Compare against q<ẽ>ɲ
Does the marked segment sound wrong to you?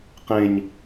no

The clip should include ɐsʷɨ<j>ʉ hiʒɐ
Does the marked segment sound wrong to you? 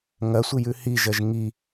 no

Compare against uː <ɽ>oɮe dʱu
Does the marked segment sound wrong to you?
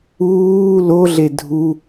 yes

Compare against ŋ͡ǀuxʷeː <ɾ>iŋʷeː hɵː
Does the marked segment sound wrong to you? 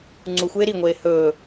no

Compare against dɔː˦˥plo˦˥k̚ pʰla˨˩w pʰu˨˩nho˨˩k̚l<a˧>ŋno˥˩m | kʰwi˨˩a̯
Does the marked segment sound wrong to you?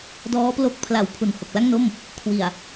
yes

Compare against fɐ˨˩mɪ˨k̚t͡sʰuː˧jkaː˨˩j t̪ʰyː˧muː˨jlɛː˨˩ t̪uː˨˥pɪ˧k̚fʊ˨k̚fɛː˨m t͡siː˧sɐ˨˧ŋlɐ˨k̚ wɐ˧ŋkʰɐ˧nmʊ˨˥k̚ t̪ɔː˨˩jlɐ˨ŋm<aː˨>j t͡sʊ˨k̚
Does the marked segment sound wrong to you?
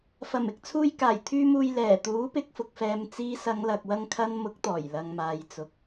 no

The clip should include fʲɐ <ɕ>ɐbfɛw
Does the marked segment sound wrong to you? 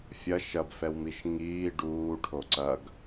yes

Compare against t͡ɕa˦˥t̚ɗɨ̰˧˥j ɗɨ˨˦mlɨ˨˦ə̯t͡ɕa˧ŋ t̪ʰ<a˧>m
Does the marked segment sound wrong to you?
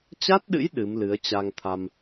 no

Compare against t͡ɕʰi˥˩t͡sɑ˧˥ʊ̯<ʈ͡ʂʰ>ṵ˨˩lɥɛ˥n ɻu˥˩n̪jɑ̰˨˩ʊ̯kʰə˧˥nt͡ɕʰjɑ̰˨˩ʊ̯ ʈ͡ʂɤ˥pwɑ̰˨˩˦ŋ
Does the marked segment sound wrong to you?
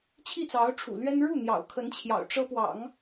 no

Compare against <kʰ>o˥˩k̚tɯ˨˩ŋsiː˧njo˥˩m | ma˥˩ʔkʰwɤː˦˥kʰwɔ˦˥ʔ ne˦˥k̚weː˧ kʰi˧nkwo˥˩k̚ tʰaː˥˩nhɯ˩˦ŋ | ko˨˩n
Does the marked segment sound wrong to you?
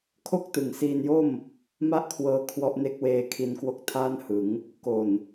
no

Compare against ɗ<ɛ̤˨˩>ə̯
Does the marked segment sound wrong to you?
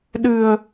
yes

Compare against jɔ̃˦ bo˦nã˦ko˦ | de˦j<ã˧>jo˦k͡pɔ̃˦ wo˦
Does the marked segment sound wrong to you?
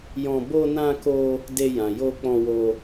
no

